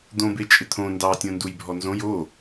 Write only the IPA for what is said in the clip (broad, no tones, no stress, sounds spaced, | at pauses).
d̪ õ b e t͡ʃʼ ɪ t̪ʰ õ n d ɑ tʲ õ n d u j bʱ ɔ n z õ j o